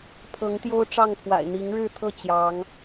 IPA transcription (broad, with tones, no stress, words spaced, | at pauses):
pʰɤ˨˦ŋt̪jo˦ʊ̯ ʈ͡ʂɑ˥˨ŋpʰwa̰˨˩ɪ̯ n̪i˨˦ŋɻɻ̩˥˨t̪ʰɤ˥˨ t͡ɕjɑ˨˦ŋ